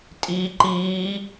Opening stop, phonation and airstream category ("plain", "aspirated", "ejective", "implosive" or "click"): ejective